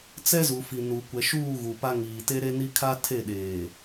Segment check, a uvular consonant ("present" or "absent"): absent